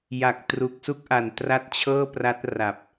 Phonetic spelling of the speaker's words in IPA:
j a˨˩ k̚ t r u˨˩ k̚ s u˦˥ k̚ ʔ a˨˩ n t r a˦˥ t̚ t͡ɕʰ ɤː˥˩ p r a˦˥ t̚ r a˨˩ p̚

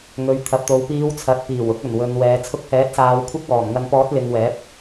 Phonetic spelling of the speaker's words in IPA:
ŋ ɵ˨ ɥ t̪ʰ ɐ˨ p̚ t̪ o˨ w p iː˨˧ w t͡sʰ ɐ˨ t̚ p iː˨˩ w ʊ˧ k̚ ɵ˨˩ n w ɵ˨ n w ɛː˨ t͡sʰ ʊ˧ k̚ h ɛː˨˥ t̚ s aː˨˧ w kʷʰ ɪ˥ k̚ w ɔː˨˩ m ŋ ɐ˧ n p ɔː˨˥ t̚ l ɪ˨ ŋ w ɛː˨˥ p̚

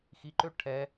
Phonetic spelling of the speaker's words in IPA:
x i ǃ ø ʈʰ ɛ

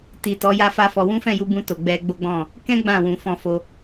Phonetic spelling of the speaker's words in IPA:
t i˨ t ɔ˨˦ j a˦ f a˦ f ɔ˧ w ũ˦ f ɛ̃˦˨ j u˧ b ũ˧ t o˨ ɡ͡b ɛ˧ ɡ͡b o˦ ɡ͡b ɔ̃˦˨ | k ɛ̃˦ ɡ͡b ã˦˨ w ũ˨ f ɔ̃˧ f o˧

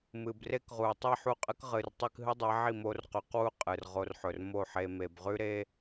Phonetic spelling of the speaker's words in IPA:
m ɨ˨ b r e˦ k ʁ u˨ tˤ i˦˨ ħ u˦˨ qʼ ɨ˦ k ʁ ɨ˨ r tˤ ɨ˧ k ɦ ɨ˦ dˤ e˨˦ ʕ i˦˨ m o˧ r q ʉ˨˦ q w u˦ qʼ ɨ˨ r ʁ o˧ r ħ ɵ˨ r m o˦˨ ħ e˧ m e˨ b ʁ ʉ˦ ɾ e˦

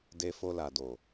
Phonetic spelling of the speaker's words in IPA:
d e˦ f o˧ l a˨ d o˨

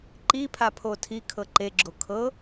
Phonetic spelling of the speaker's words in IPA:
ǃ i pʰ a pʰ o tʰ i kʰ ɤ ǃ e ɡ͡ǁ o kʰ ɤ

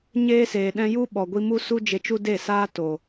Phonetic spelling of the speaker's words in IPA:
ɲ eː˧ s eː˨ ɗ ɛ̃˧ j u˦ ɓ ɔ˨ ɡʷ i˧ m u˦ s u˦ d͡ʒ e˧ t͡ʃ u˦ d e˦˨ s aː˦ t o˨

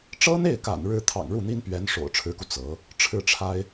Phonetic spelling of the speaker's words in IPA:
ʈ͡ʂ ɤ˥ n̪ e˥˩ ɪ̯ k a̰˨˩ n ɻ ɻ̩˥ t̪ʰ ɑ̰˨˩ ŋ ɻ u˥˩ n̪ i˥ n p ɥ ɛ˧˥ n ʂ o̰˨˩ ʊ̯ ʈ͡ʂʰ ɻ̩˧˥ k u˧ t͡s ɤ˧˥ | ʈ͡ʂʰ ɻ̩˥˩ ʈ͡ʂʰ a˥ ɪ̯

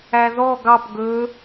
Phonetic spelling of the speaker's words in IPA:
æ ð ɔ ɡ ɑ p ɡ ɵ

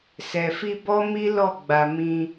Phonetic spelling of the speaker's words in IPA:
s ɛ˨ f i˧ b ɔ˦ m i˦ l ɔ˦˨ ɡ͡b a˧ m ĩ˧

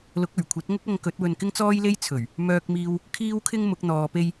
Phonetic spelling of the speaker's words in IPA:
l ʊ˨˥ k̚ ɵ˨˩ ɥ kʷʰ ɐ˨˥ t̚ ŋ ʊ˥ k̚ ɐ˧ ŋ k ɵ˨˥ t̚ w ɵ˧ n k ɪ˥ ŋ t͡s ɔː˥ j l e˥ j t͡sʰ ɵ˨˩ ɥ | m œː˧ k̚ m iː˧ w | kʰ iː˥ w kʰ ɪ˥ ŋ m ʊ˨˥ k̚ n̪ ɔː˨˧ p e˥ j

